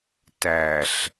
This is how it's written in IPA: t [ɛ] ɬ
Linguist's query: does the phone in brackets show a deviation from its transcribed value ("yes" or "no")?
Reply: yes